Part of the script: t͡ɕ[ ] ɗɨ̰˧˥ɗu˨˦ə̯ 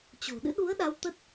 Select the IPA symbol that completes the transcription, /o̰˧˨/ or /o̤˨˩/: o̤˨˩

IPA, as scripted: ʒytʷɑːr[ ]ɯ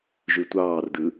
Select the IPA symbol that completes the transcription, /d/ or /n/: d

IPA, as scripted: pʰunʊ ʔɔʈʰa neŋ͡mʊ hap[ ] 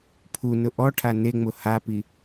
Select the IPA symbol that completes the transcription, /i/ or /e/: i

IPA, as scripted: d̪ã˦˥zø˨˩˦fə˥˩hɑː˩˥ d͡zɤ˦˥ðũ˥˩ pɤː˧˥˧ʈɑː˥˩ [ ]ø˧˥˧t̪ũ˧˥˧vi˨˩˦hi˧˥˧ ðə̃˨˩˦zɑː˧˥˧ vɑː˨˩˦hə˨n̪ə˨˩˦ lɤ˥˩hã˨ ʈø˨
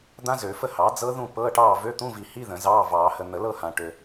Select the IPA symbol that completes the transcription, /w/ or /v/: v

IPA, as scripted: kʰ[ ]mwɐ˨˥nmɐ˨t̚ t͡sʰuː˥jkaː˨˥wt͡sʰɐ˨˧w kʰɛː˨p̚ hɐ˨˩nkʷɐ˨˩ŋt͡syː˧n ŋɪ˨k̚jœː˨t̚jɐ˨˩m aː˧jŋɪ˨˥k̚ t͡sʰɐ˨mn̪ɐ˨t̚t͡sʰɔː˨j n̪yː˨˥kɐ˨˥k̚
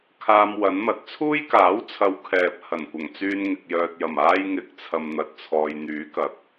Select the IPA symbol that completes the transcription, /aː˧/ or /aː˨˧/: aː˧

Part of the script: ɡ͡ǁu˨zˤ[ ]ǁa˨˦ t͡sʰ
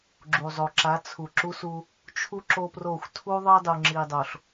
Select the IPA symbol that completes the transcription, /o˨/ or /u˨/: o˨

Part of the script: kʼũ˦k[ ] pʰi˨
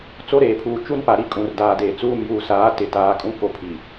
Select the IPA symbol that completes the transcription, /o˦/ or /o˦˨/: o˦˨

